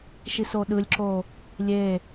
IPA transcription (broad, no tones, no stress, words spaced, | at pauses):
ʃisoɗɯlʲǁo | lʲe